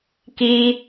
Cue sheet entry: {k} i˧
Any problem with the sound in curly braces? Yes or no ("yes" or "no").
no